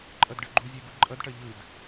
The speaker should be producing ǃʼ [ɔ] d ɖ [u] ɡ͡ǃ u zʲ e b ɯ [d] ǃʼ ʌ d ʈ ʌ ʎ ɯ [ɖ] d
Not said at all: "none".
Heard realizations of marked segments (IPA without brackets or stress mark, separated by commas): ʌ, ɯ, d, none